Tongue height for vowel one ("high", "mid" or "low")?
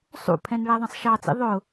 high